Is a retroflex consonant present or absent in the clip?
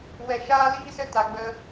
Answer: absent